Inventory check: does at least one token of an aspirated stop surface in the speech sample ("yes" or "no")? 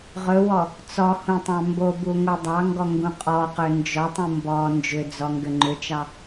no